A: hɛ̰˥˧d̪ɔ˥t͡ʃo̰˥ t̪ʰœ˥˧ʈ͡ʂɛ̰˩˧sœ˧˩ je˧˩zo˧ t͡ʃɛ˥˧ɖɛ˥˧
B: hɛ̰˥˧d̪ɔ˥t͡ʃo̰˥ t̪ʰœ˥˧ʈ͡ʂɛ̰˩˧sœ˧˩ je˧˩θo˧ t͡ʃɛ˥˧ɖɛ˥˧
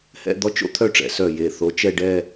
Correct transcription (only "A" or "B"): B